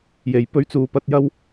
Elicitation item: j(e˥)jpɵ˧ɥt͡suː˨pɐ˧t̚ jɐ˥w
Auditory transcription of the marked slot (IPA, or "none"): e˨˩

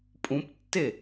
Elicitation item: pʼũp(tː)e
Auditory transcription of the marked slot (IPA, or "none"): tː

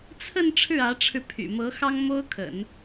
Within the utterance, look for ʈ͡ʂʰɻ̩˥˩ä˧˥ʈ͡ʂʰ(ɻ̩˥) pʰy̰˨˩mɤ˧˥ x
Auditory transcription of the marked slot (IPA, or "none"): ɻ̩˧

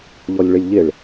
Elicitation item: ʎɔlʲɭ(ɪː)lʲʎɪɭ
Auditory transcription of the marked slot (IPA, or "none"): ɪ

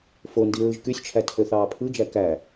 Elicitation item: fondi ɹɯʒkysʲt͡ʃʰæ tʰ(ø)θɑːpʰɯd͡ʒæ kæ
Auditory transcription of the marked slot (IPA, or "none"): ø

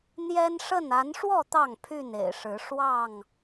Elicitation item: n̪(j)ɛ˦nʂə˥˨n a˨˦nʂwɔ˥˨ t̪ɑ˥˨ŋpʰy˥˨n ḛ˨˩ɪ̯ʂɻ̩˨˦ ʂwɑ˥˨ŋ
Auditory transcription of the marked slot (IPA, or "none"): j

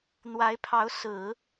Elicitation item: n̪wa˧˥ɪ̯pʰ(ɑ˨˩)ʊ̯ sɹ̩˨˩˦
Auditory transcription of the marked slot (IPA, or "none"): ɑ˧˥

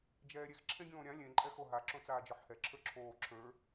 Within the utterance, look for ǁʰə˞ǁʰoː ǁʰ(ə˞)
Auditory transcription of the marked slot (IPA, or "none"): ə˞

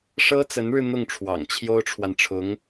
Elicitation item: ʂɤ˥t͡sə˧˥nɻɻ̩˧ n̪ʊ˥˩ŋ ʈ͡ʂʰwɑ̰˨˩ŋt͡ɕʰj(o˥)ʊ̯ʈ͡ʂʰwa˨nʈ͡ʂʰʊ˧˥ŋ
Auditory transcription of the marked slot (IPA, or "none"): o˥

